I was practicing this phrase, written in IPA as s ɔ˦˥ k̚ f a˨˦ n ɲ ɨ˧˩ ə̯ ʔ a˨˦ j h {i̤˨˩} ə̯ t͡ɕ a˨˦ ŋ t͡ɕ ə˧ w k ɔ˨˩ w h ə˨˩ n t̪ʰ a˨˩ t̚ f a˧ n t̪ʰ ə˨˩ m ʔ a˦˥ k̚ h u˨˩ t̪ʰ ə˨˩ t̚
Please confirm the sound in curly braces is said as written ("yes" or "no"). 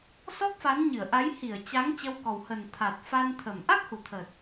no